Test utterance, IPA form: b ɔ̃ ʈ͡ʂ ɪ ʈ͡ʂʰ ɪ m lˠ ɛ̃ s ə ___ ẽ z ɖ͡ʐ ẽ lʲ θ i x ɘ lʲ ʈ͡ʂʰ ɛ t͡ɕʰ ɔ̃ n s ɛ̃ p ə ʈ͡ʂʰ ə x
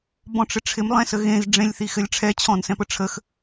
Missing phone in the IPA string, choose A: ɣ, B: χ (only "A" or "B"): A